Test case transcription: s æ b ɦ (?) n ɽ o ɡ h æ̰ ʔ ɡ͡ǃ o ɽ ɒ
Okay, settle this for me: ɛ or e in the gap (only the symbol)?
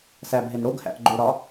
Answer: e